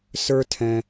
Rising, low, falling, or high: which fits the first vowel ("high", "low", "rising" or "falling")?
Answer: high